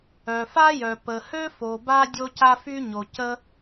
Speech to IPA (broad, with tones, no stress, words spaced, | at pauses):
œ˩fa˥jœ˩ pə˩hø˥ fo˩ba˥ dʲo˥ca˥ fy˥ɲo˩ cə˥